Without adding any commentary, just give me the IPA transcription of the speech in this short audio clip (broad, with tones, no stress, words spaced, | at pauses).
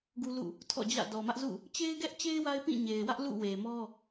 ɡu˦lṵ˦˨ | tʰɔ̰˦˨d͡ʑä̰˦˨ dɔ˨mä˦ʔzṵ˦˨ | t͡ɕe˦ɪ̯ɡɛ˦ʔt͡ɕe˦ɪ̯ wa˦ɪ̯pĩ˦˨ɲe˨ɪ̯wä˦ʔ lṵ˦˨we˨mɔ˦